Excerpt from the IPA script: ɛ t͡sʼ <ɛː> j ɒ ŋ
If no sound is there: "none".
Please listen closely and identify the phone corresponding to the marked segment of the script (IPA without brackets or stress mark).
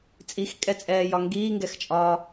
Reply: ɛː